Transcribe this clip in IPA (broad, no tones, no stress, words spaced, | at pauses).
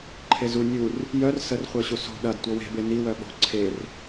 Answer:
ǃʰezu nʲur | jœr sərχʷœɕu so̤ ɗɐd tʷɤwe̤ beniwœ ɓo̤ ǀʰer